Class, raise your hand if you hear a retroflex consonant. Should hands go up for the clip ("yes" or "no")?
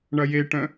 yes